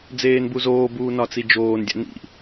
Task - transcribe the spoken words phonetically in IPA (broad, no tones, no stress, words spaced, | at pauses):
d͡zeːnbuzoːbuː nɒt͡sid͡ʒoːndʲæ̰ nḭ